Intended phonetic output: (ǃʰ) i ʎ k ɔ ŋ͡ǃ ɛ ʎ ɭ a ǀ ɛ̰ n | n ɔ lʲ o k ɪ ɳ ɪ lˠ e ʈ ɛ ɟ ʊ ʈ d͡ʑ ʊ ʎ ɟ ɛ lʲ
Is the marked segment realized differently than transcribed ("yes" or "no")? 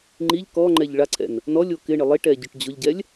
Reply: yes